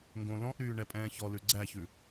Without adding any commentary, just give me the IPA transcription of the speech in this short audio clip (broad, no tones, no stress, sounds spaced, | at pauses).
ŋ ɡ õ l ɔ̃ ʔ ɾ yː ɳ ɛ pʼ ɛ̃ː ç ɔ l ʉ ɡ͡ǀ æ ç ʉ